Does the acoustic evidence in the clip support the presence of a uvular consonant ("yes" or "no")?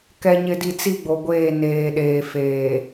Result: no